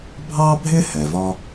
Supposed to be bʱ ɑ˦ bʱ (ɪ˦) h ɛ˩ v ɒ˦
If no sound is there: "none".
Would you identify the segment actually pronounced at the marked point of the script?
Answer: ɪ˦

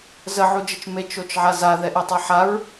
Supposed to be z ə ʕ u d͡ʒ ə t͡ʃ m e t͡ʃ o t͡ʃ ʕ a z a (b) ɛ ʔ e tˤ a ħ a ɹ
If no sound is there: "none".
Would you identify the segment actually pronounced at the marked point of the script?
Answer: ð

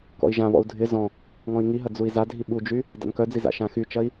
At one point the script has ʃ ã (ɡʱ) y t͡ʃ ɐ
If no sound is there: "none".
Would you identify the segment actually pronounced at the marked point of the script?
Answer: x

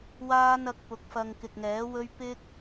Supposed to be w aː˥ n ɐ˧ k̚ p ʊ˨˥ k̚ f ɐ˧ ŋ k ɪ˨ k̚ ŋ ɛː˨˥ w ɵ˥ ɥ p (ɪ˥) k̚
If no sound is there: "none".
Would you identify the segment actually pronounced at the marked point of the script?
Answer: ɪ˥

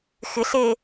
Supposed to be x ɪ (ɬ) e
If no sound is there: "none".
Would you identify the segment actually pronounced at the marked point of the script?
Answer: ɬ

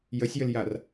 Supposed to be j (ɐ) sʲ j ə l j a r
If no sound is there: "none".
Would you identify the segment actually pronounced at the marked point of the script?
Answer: ə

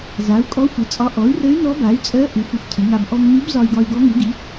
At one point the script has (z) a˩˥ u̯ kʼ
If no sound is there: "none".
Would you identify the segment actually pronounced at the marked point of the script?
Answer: z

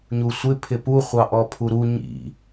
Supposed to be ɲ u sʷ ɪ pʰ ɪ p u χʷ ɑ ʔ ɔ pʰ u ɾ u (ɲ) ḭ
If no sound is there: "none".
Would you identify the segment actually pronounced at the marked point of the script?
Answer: ɲ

